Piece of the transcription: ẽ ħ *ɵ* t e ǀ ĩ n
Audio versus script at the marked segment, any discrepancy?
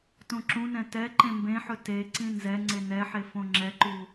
no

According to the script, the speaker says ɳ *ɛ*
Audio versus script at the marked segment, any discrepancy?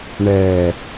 no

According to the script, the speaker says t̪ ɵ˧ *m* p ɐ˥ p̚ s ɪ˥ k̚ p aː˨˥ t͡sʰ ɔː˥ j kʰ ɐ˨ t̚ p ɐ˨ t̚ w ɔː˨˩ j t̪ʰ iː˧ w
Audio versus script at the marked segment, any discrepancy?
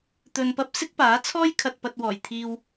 yes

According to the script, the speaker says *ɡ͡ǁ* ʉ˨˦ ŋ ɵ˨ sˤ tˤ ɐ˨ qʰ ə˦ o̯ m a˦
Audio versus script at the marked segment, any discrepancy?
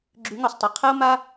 no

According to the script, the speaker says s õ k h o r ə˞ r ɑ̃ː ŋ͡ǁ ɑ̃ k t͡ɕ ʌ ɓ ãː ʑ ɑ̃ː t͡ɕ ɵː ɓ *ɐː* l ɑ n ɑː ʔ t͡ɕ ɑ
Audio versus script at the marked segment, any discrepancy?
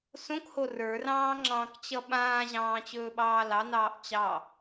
yes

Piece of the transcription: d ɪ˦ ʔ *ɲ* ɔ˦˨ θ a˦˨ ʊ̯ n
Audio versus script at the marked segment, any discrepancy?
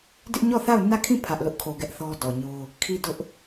no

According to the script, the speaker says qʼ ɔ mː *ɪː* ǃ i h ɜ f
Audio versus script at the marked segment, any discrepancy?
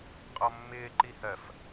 no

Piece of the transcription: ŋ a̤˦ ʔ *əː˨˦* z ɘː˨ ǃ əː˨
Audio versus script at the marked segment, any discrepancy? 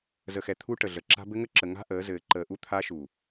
no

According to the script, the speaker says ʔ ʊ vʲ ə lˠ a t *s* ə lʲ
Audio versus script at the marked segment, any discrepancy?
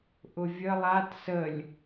no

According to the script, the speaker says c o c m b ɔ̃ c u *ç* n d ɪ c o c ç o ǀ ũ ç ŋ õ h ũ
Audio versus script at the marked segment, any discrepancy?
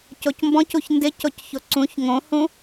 no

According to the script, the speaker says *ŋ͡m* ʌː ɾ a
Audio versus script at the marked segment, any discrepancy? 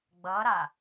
yes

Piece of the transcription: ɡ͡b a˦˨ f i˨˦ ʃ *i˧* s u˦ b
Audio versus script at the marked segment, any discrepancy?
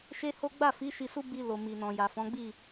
no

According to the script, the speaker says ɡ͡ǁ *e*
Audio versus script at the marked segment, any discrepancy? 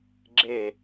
no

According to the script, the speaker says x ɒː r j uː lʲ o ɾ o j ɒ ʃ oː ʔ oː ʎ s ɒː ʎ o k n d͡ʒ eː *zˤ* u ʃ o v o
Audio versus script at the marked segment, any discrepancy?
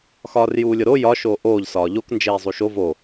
no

